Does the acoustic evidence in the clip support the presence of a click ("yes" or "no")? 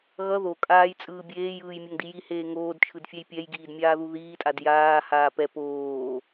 no